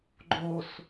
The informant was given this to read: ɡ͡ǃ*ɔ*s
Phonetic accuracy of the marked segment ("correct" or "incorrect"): incorrect